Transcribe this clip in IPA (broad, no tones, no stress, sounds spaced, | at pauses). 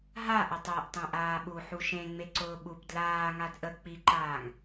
ɦ a ʔ ʊ tˤ ʊː ʔ tˤ ẽ ʔ aː ɓ u ħ u ʃ ẽ ŋ͡m e ǀ ʊː ɓ u p d l aː ŋ a d ʔ ə k͡p i ǃ aː ŋ